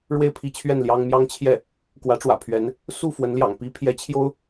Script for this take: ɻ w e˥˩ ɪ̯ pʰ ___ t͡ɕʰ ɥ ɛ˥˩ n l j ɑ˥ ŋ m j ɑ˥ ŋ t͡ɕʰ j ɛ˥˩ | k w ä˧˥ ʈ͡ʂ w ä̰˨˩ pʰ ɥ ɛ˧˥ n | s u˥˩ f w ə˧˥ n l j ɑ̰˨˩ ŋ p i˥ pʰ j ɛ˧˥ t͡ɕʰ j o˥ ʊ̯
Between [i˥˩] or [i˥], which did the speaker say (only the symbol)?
i˥